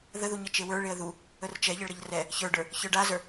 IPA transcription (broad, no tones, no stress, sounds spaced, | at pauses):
ð ə ð u ɲ ə t͡ʃ e w ə˞ ɭ e ə̯ ð u | ə r t͡ʃ ɛ ʎ ə ɭ ɾ ə ʎ r ɛ | ç ə˞ ɖ ə˞ | ç ə˞ ɖ a z ə˞